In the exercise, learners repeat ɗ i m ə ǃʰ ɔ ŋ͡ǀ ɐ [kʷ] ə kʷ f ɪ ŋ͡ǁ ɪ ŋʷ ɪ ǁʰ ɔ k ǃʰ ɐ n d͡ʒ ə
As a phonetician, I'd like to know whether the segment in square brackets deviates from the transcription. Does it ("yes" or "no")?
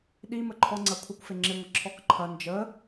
yes